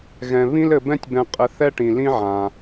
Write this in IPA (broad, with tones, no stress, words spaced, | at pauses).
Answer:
ɣɛ̃˩ βĩ˦lɘ˨ bɛ̃˦tʲbɛ̃˨qʼɘ˨ θɛ˦ʈĩ˩ lĩ˥ʕã˩